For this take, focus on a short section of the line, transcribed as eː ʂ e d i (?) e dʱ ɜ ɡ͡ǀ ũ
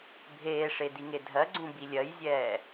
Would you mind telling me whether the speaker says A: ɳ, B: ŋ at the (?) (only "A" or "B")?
B